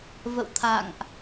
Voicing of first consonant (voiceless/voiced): voiced